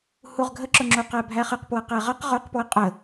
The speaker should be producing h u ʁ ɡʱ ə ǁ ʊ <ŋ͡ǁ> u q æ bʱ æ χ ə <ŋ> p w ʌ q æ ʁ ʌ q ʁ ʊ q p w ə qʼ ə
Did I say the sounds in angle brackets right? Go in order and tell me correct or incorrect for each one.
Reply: correct, incorrect

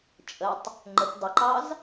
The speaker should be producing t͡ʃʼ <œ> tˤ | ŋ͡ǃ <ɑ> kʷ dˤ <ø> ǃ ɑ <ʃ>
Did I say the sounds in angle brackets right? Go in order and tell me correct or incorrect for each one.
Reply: incorrect, incorrect, incorrect, incorrect

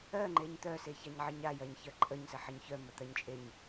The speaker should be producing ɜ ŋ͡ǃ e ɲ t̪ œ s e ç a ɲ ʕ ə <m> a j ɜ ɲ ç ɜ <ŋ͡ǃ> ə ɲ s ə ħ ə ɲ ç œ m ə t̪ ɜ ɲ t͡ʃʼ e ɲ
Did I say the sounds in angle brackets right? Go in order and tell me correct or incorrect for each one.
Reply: incorrect, incorrect

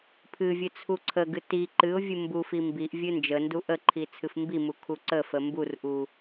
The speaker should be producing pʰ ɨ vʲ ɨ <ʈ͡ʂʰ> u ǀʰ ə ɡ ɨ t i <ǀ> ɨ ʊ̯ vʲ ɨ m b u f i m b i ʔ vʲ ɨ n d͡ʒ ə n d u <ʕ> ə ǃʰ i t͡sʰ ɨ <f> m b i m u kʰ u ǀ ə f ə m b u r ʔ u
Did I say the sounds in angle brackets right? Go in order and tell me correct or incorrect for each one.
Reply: incorrect, incorrect, incorrect, correct

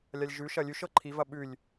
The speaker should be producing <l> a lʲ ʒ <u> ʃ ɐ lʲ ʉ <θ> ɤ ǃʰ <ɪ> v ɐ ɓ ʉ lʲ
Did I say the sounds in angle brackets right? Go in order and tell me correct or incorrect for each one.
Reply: incorrect, incorrect, incorrect, incorrect

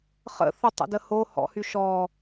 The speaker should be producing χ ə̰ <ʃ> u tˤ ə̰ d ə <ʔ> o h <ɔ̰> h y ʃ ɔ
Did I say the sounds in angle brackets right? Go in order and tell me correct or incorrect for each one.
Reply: incorrect, incorrect, correct

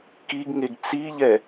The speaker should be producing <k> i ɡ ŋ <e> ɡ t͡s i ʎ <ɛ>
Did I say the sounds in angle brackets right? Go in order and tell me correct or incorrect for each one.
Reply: correct, correct, correct

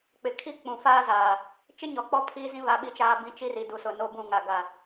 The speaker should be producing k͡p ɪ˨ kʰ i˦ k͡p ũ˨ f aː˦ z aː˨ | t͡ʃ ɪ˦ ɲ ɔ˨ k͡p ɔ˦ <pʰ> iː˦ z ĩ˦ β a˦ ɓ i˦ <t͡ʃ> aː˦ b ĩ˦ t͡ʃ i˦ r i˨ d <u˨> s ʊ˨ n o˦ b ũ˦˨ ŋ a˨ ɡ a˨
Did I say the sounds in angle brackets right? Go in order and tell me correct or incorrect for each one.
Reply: correct, correct, correct

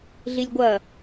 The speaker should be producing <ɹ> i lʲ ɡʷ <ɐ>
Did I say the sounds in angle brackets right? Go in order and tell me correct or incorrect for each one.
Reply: incorrect, correct

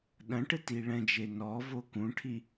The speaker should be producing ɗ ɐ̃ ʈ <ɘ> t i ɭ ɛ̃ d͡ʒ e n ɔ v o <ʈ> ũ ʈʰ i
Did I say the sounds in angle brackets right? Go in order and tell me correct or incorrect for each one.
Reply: correct, incorrect

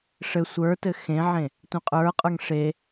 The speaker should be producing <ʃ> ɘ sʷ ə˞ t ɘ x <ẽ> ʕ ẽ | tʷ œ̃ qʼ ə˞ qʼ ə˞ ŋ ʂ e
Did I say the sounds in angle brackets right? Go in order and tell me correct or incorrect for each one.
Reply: incorrect, correct

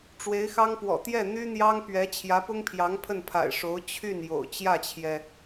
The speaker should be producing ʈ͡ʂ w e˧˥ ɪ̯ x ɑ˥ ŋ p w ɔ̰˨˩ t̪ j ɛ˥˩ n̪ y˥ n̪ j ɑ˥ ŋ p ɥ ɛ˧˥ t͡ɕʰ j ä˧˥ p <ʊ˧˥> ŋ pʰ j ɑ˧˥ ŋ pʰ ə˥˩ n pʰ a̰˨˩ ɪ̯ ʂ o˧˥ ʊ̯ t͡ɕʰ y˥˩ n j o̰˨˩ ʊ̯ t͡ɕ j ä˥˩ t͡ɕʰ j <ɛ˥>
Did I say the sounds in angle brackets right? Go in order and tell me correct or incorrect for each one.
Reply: incorrect, incorrect

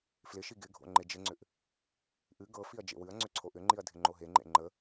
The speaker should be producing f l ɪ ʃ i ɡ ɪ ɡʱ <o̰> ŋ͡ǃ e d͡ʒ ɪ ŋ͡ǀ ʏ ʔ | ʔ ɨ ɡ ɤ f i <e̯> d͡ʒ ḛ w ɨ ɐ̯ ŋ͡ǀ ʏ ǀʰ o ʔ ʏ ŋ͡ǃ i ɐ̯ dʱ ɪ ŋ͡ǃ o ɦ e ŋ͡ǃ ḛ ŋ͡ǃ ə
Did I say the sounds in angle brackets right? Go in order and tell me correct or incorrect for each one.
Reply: correct, incorrect

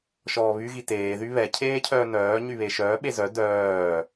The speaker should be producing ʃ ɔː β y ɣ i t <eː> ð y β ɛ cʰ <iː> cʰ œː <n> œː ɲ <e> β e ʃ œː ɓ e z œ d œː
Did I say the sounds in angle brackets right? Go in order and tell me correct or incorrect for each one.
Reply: correct, incorrect, correct, incorrect

